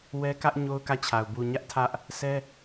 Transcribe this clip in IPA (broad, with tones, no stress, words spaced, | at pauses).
wɛ˦kä˦ʔ ɲo˦ʊ̯kä˦˨t͡ɕʰa˨ʊ̯ bu˨ ɲä˦ʔtʰä˦ʔ | sʰɛ˦